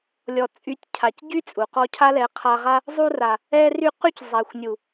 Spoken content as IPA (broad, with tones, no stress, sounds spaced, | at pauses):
lʲ ɔ˨ t͡sʼ y˨˦ tʲ cʰ a˨ c ɟ y˦ t͡sʼ u˨ q ɔ˦ cʰ a˦ l ɛ˨˦ qʰ a˧ ʁ a˦ | zˤ u˧ r a˨ | ɛ˧ r y˧ q y˦ c zˤ a˨ xʷ nʲ u˨